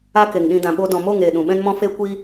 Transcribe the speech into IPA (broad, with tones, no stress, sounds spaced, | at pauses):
a˦ k e˨ ŋ ɗ ĩ˧ d ã˨ ɓ o˧ d ɔ̃˨ m o˦˨ ŋ eː˨ ɗ ũ˨ ɓ ɛ̃˦ n m ɔ̃˦ f e˦ kʷ i˦